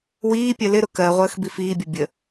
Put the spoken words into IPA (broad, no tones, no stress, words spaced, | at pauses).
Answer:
wiːpʲɜ lɪɾʊ kɜʁʷəːx bifiːbʲʌ bʲə